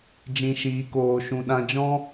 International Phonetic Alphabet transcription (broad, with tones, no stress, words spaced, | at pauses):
d͡ʒĩ˧ ʃiː˧koː˧ʃũ˧ ɗã˧d͡ʒɔ̃˦